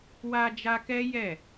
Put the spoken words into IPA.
wa˧d͡ʒa˧ kɛ˦jɛ˦˨

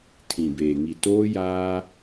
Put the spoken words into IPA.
tʰĩ˨beː˨ŋi˨ toː˦jaː˦

